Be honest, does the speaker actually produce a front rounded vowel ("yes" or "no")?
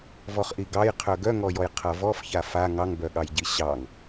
yes